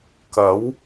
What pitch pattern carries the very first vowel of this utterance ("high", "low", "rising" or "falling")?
rising